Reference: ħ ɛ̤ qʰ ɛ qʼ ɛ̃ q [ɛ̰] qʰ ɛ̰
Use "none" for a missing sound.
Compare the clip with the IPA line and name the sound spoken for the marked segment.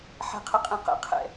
ɛ̰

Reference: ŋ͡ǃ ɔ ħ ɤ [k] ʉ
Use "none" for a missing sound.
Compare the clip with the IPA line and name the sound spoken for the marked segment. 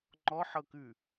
k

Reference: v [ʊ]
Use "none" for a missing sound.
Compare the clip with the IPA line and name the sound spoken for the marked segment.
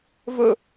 ʊ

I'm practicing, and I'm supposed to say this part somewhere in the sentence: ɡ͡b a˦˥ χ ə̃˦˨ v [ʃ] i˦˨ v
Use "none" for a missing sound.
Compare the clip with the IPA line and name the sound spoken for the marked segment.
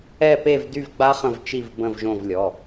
t͡ʃ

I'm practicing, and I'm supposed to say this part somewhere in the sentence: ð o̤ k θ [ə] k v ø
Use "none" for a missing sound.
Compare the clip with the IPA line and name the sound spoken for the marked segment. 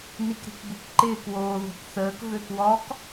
əː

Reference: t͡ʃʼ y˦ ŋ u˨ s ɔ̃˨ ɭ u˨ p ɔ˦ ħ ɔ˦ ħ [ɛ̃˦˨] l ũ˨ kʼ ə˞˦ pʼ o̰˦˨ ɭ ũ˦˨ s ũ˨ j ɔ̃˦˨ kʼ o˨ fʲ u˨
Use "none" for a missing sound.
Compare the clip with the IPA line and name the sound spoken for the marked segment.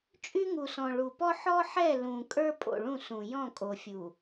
ɛ˦˨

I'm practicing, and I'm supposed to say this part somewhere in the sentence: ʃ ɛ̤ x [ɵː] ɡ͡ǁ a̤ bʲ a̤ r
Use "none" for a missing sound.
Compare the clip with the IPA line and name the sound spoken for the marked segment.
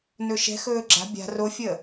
ɵː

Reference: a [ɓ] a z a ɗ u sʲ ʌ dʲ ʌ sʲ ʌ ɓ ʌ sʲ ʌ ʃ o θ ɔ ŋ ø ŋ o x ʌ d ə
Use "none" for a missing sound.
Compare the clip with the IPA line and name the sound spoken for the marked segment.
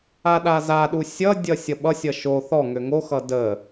ɗ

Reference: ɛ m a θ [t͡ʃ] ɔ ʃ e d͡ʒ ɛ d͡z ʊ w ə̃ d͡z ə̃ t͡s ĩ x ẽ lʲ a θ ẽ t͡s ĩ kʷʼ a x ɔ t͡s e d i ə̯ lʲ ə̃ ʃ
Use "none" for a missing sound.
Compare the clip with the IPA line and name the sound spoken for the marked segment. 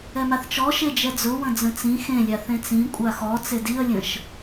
t͡ʃ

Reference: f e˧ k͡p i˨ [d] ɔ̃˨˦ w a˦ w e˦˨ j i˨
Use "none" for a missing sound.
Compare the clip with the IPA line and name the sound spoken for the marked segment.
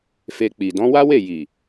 d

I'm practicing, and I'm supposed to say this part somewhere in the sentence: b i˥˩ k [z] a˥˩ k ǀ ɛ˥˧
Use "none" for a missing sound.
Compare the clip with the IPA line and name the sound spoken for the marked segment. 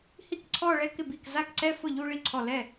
z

